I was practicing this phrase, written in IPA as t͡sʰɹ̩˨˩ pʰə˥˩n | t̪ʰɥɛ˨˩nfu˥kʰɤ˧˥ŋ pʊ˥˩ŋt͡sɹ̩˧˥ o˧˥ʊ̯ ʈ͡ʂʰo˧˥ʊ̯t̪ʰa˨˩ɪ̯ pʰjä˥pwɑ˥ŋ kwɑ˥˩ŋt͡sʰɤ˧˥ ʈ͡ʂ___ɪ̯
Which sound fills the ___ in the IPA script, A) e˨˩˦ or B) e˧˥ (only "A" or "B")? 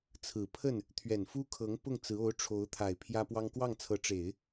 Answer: A